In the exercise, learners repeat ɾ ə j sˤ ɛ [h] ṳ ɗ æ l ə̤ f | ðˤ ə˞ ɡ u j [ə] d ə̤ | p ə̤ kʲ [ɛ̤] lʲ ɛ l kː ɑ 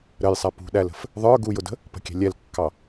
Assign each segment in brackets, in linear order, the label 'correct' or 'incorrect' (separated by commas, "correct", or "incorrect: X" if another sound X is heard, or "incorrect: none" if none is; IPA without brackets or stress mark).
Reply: incorrect: p, incorrect: ʊ, correct